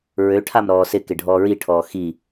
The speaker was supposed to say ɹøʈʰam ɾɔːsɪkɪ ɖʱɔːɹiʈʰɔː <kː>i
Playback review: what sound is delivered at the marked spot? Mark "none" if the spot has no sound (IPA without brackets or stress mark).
x